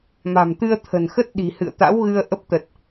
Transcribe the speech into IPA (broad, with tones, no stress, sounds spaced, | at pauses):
m a̤˨˩ m t̪ ɨ˧ ə̯ t̪ʰ ə̤˨˩ n x ə˦˥ t̚ ɗ i̤˨˩ h ɨ̰˧˨ ə̯ t̪ a̰˧˥ w ɣ ɨ˧ ə̯ ʔ ə˦˥ p̚ t̪ ə˨˩ t̚